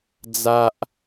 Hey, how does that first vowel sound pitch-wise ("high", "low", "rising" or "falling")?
high